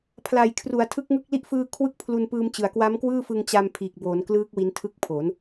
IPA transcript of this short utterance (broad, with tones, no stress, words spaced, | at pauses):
pʰla˨˩jkʰru˩˦a̯ tʰɯ˦˥k̚ŋɯ˥˩k̚ li˦˥ʔfɯː˧ kʰwɯ˥˩k̚pʰlu˧npɯː˧mt͡ɕɯ˨˩a̯ kwa˦˥mkwɯː˥˩fɯ˧ŋ t͡ɕa˧m pʰiː˨˩k̚boː˩˦nklɯː˦˥k̚ wi˦˥ntʰɯ˥˩k̚pʰo˩˦n